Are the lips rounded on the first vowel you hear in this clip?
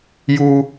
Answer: yes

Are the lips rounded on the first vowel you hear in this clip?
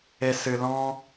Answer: no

